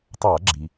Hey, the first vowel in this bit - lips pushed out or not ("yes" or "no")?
no